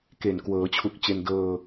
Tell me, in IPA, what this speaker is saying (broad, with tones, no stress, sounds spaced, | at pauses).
k e˨˩ n k w ɤː˩˦ t͡ɕʰ u˨˩ k̚ t͡ɕ e˧ n d ɤː˧